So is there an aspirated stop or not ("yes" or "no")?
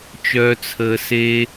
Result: yes